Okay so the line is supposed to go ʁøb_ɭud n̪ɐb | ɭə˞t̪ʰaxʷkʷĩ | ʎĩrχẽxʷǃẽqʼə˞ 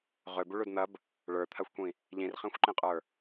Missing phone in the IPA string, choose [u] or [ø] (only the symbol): u